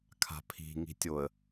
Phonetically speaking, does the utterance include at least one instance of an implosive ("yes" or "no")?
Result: no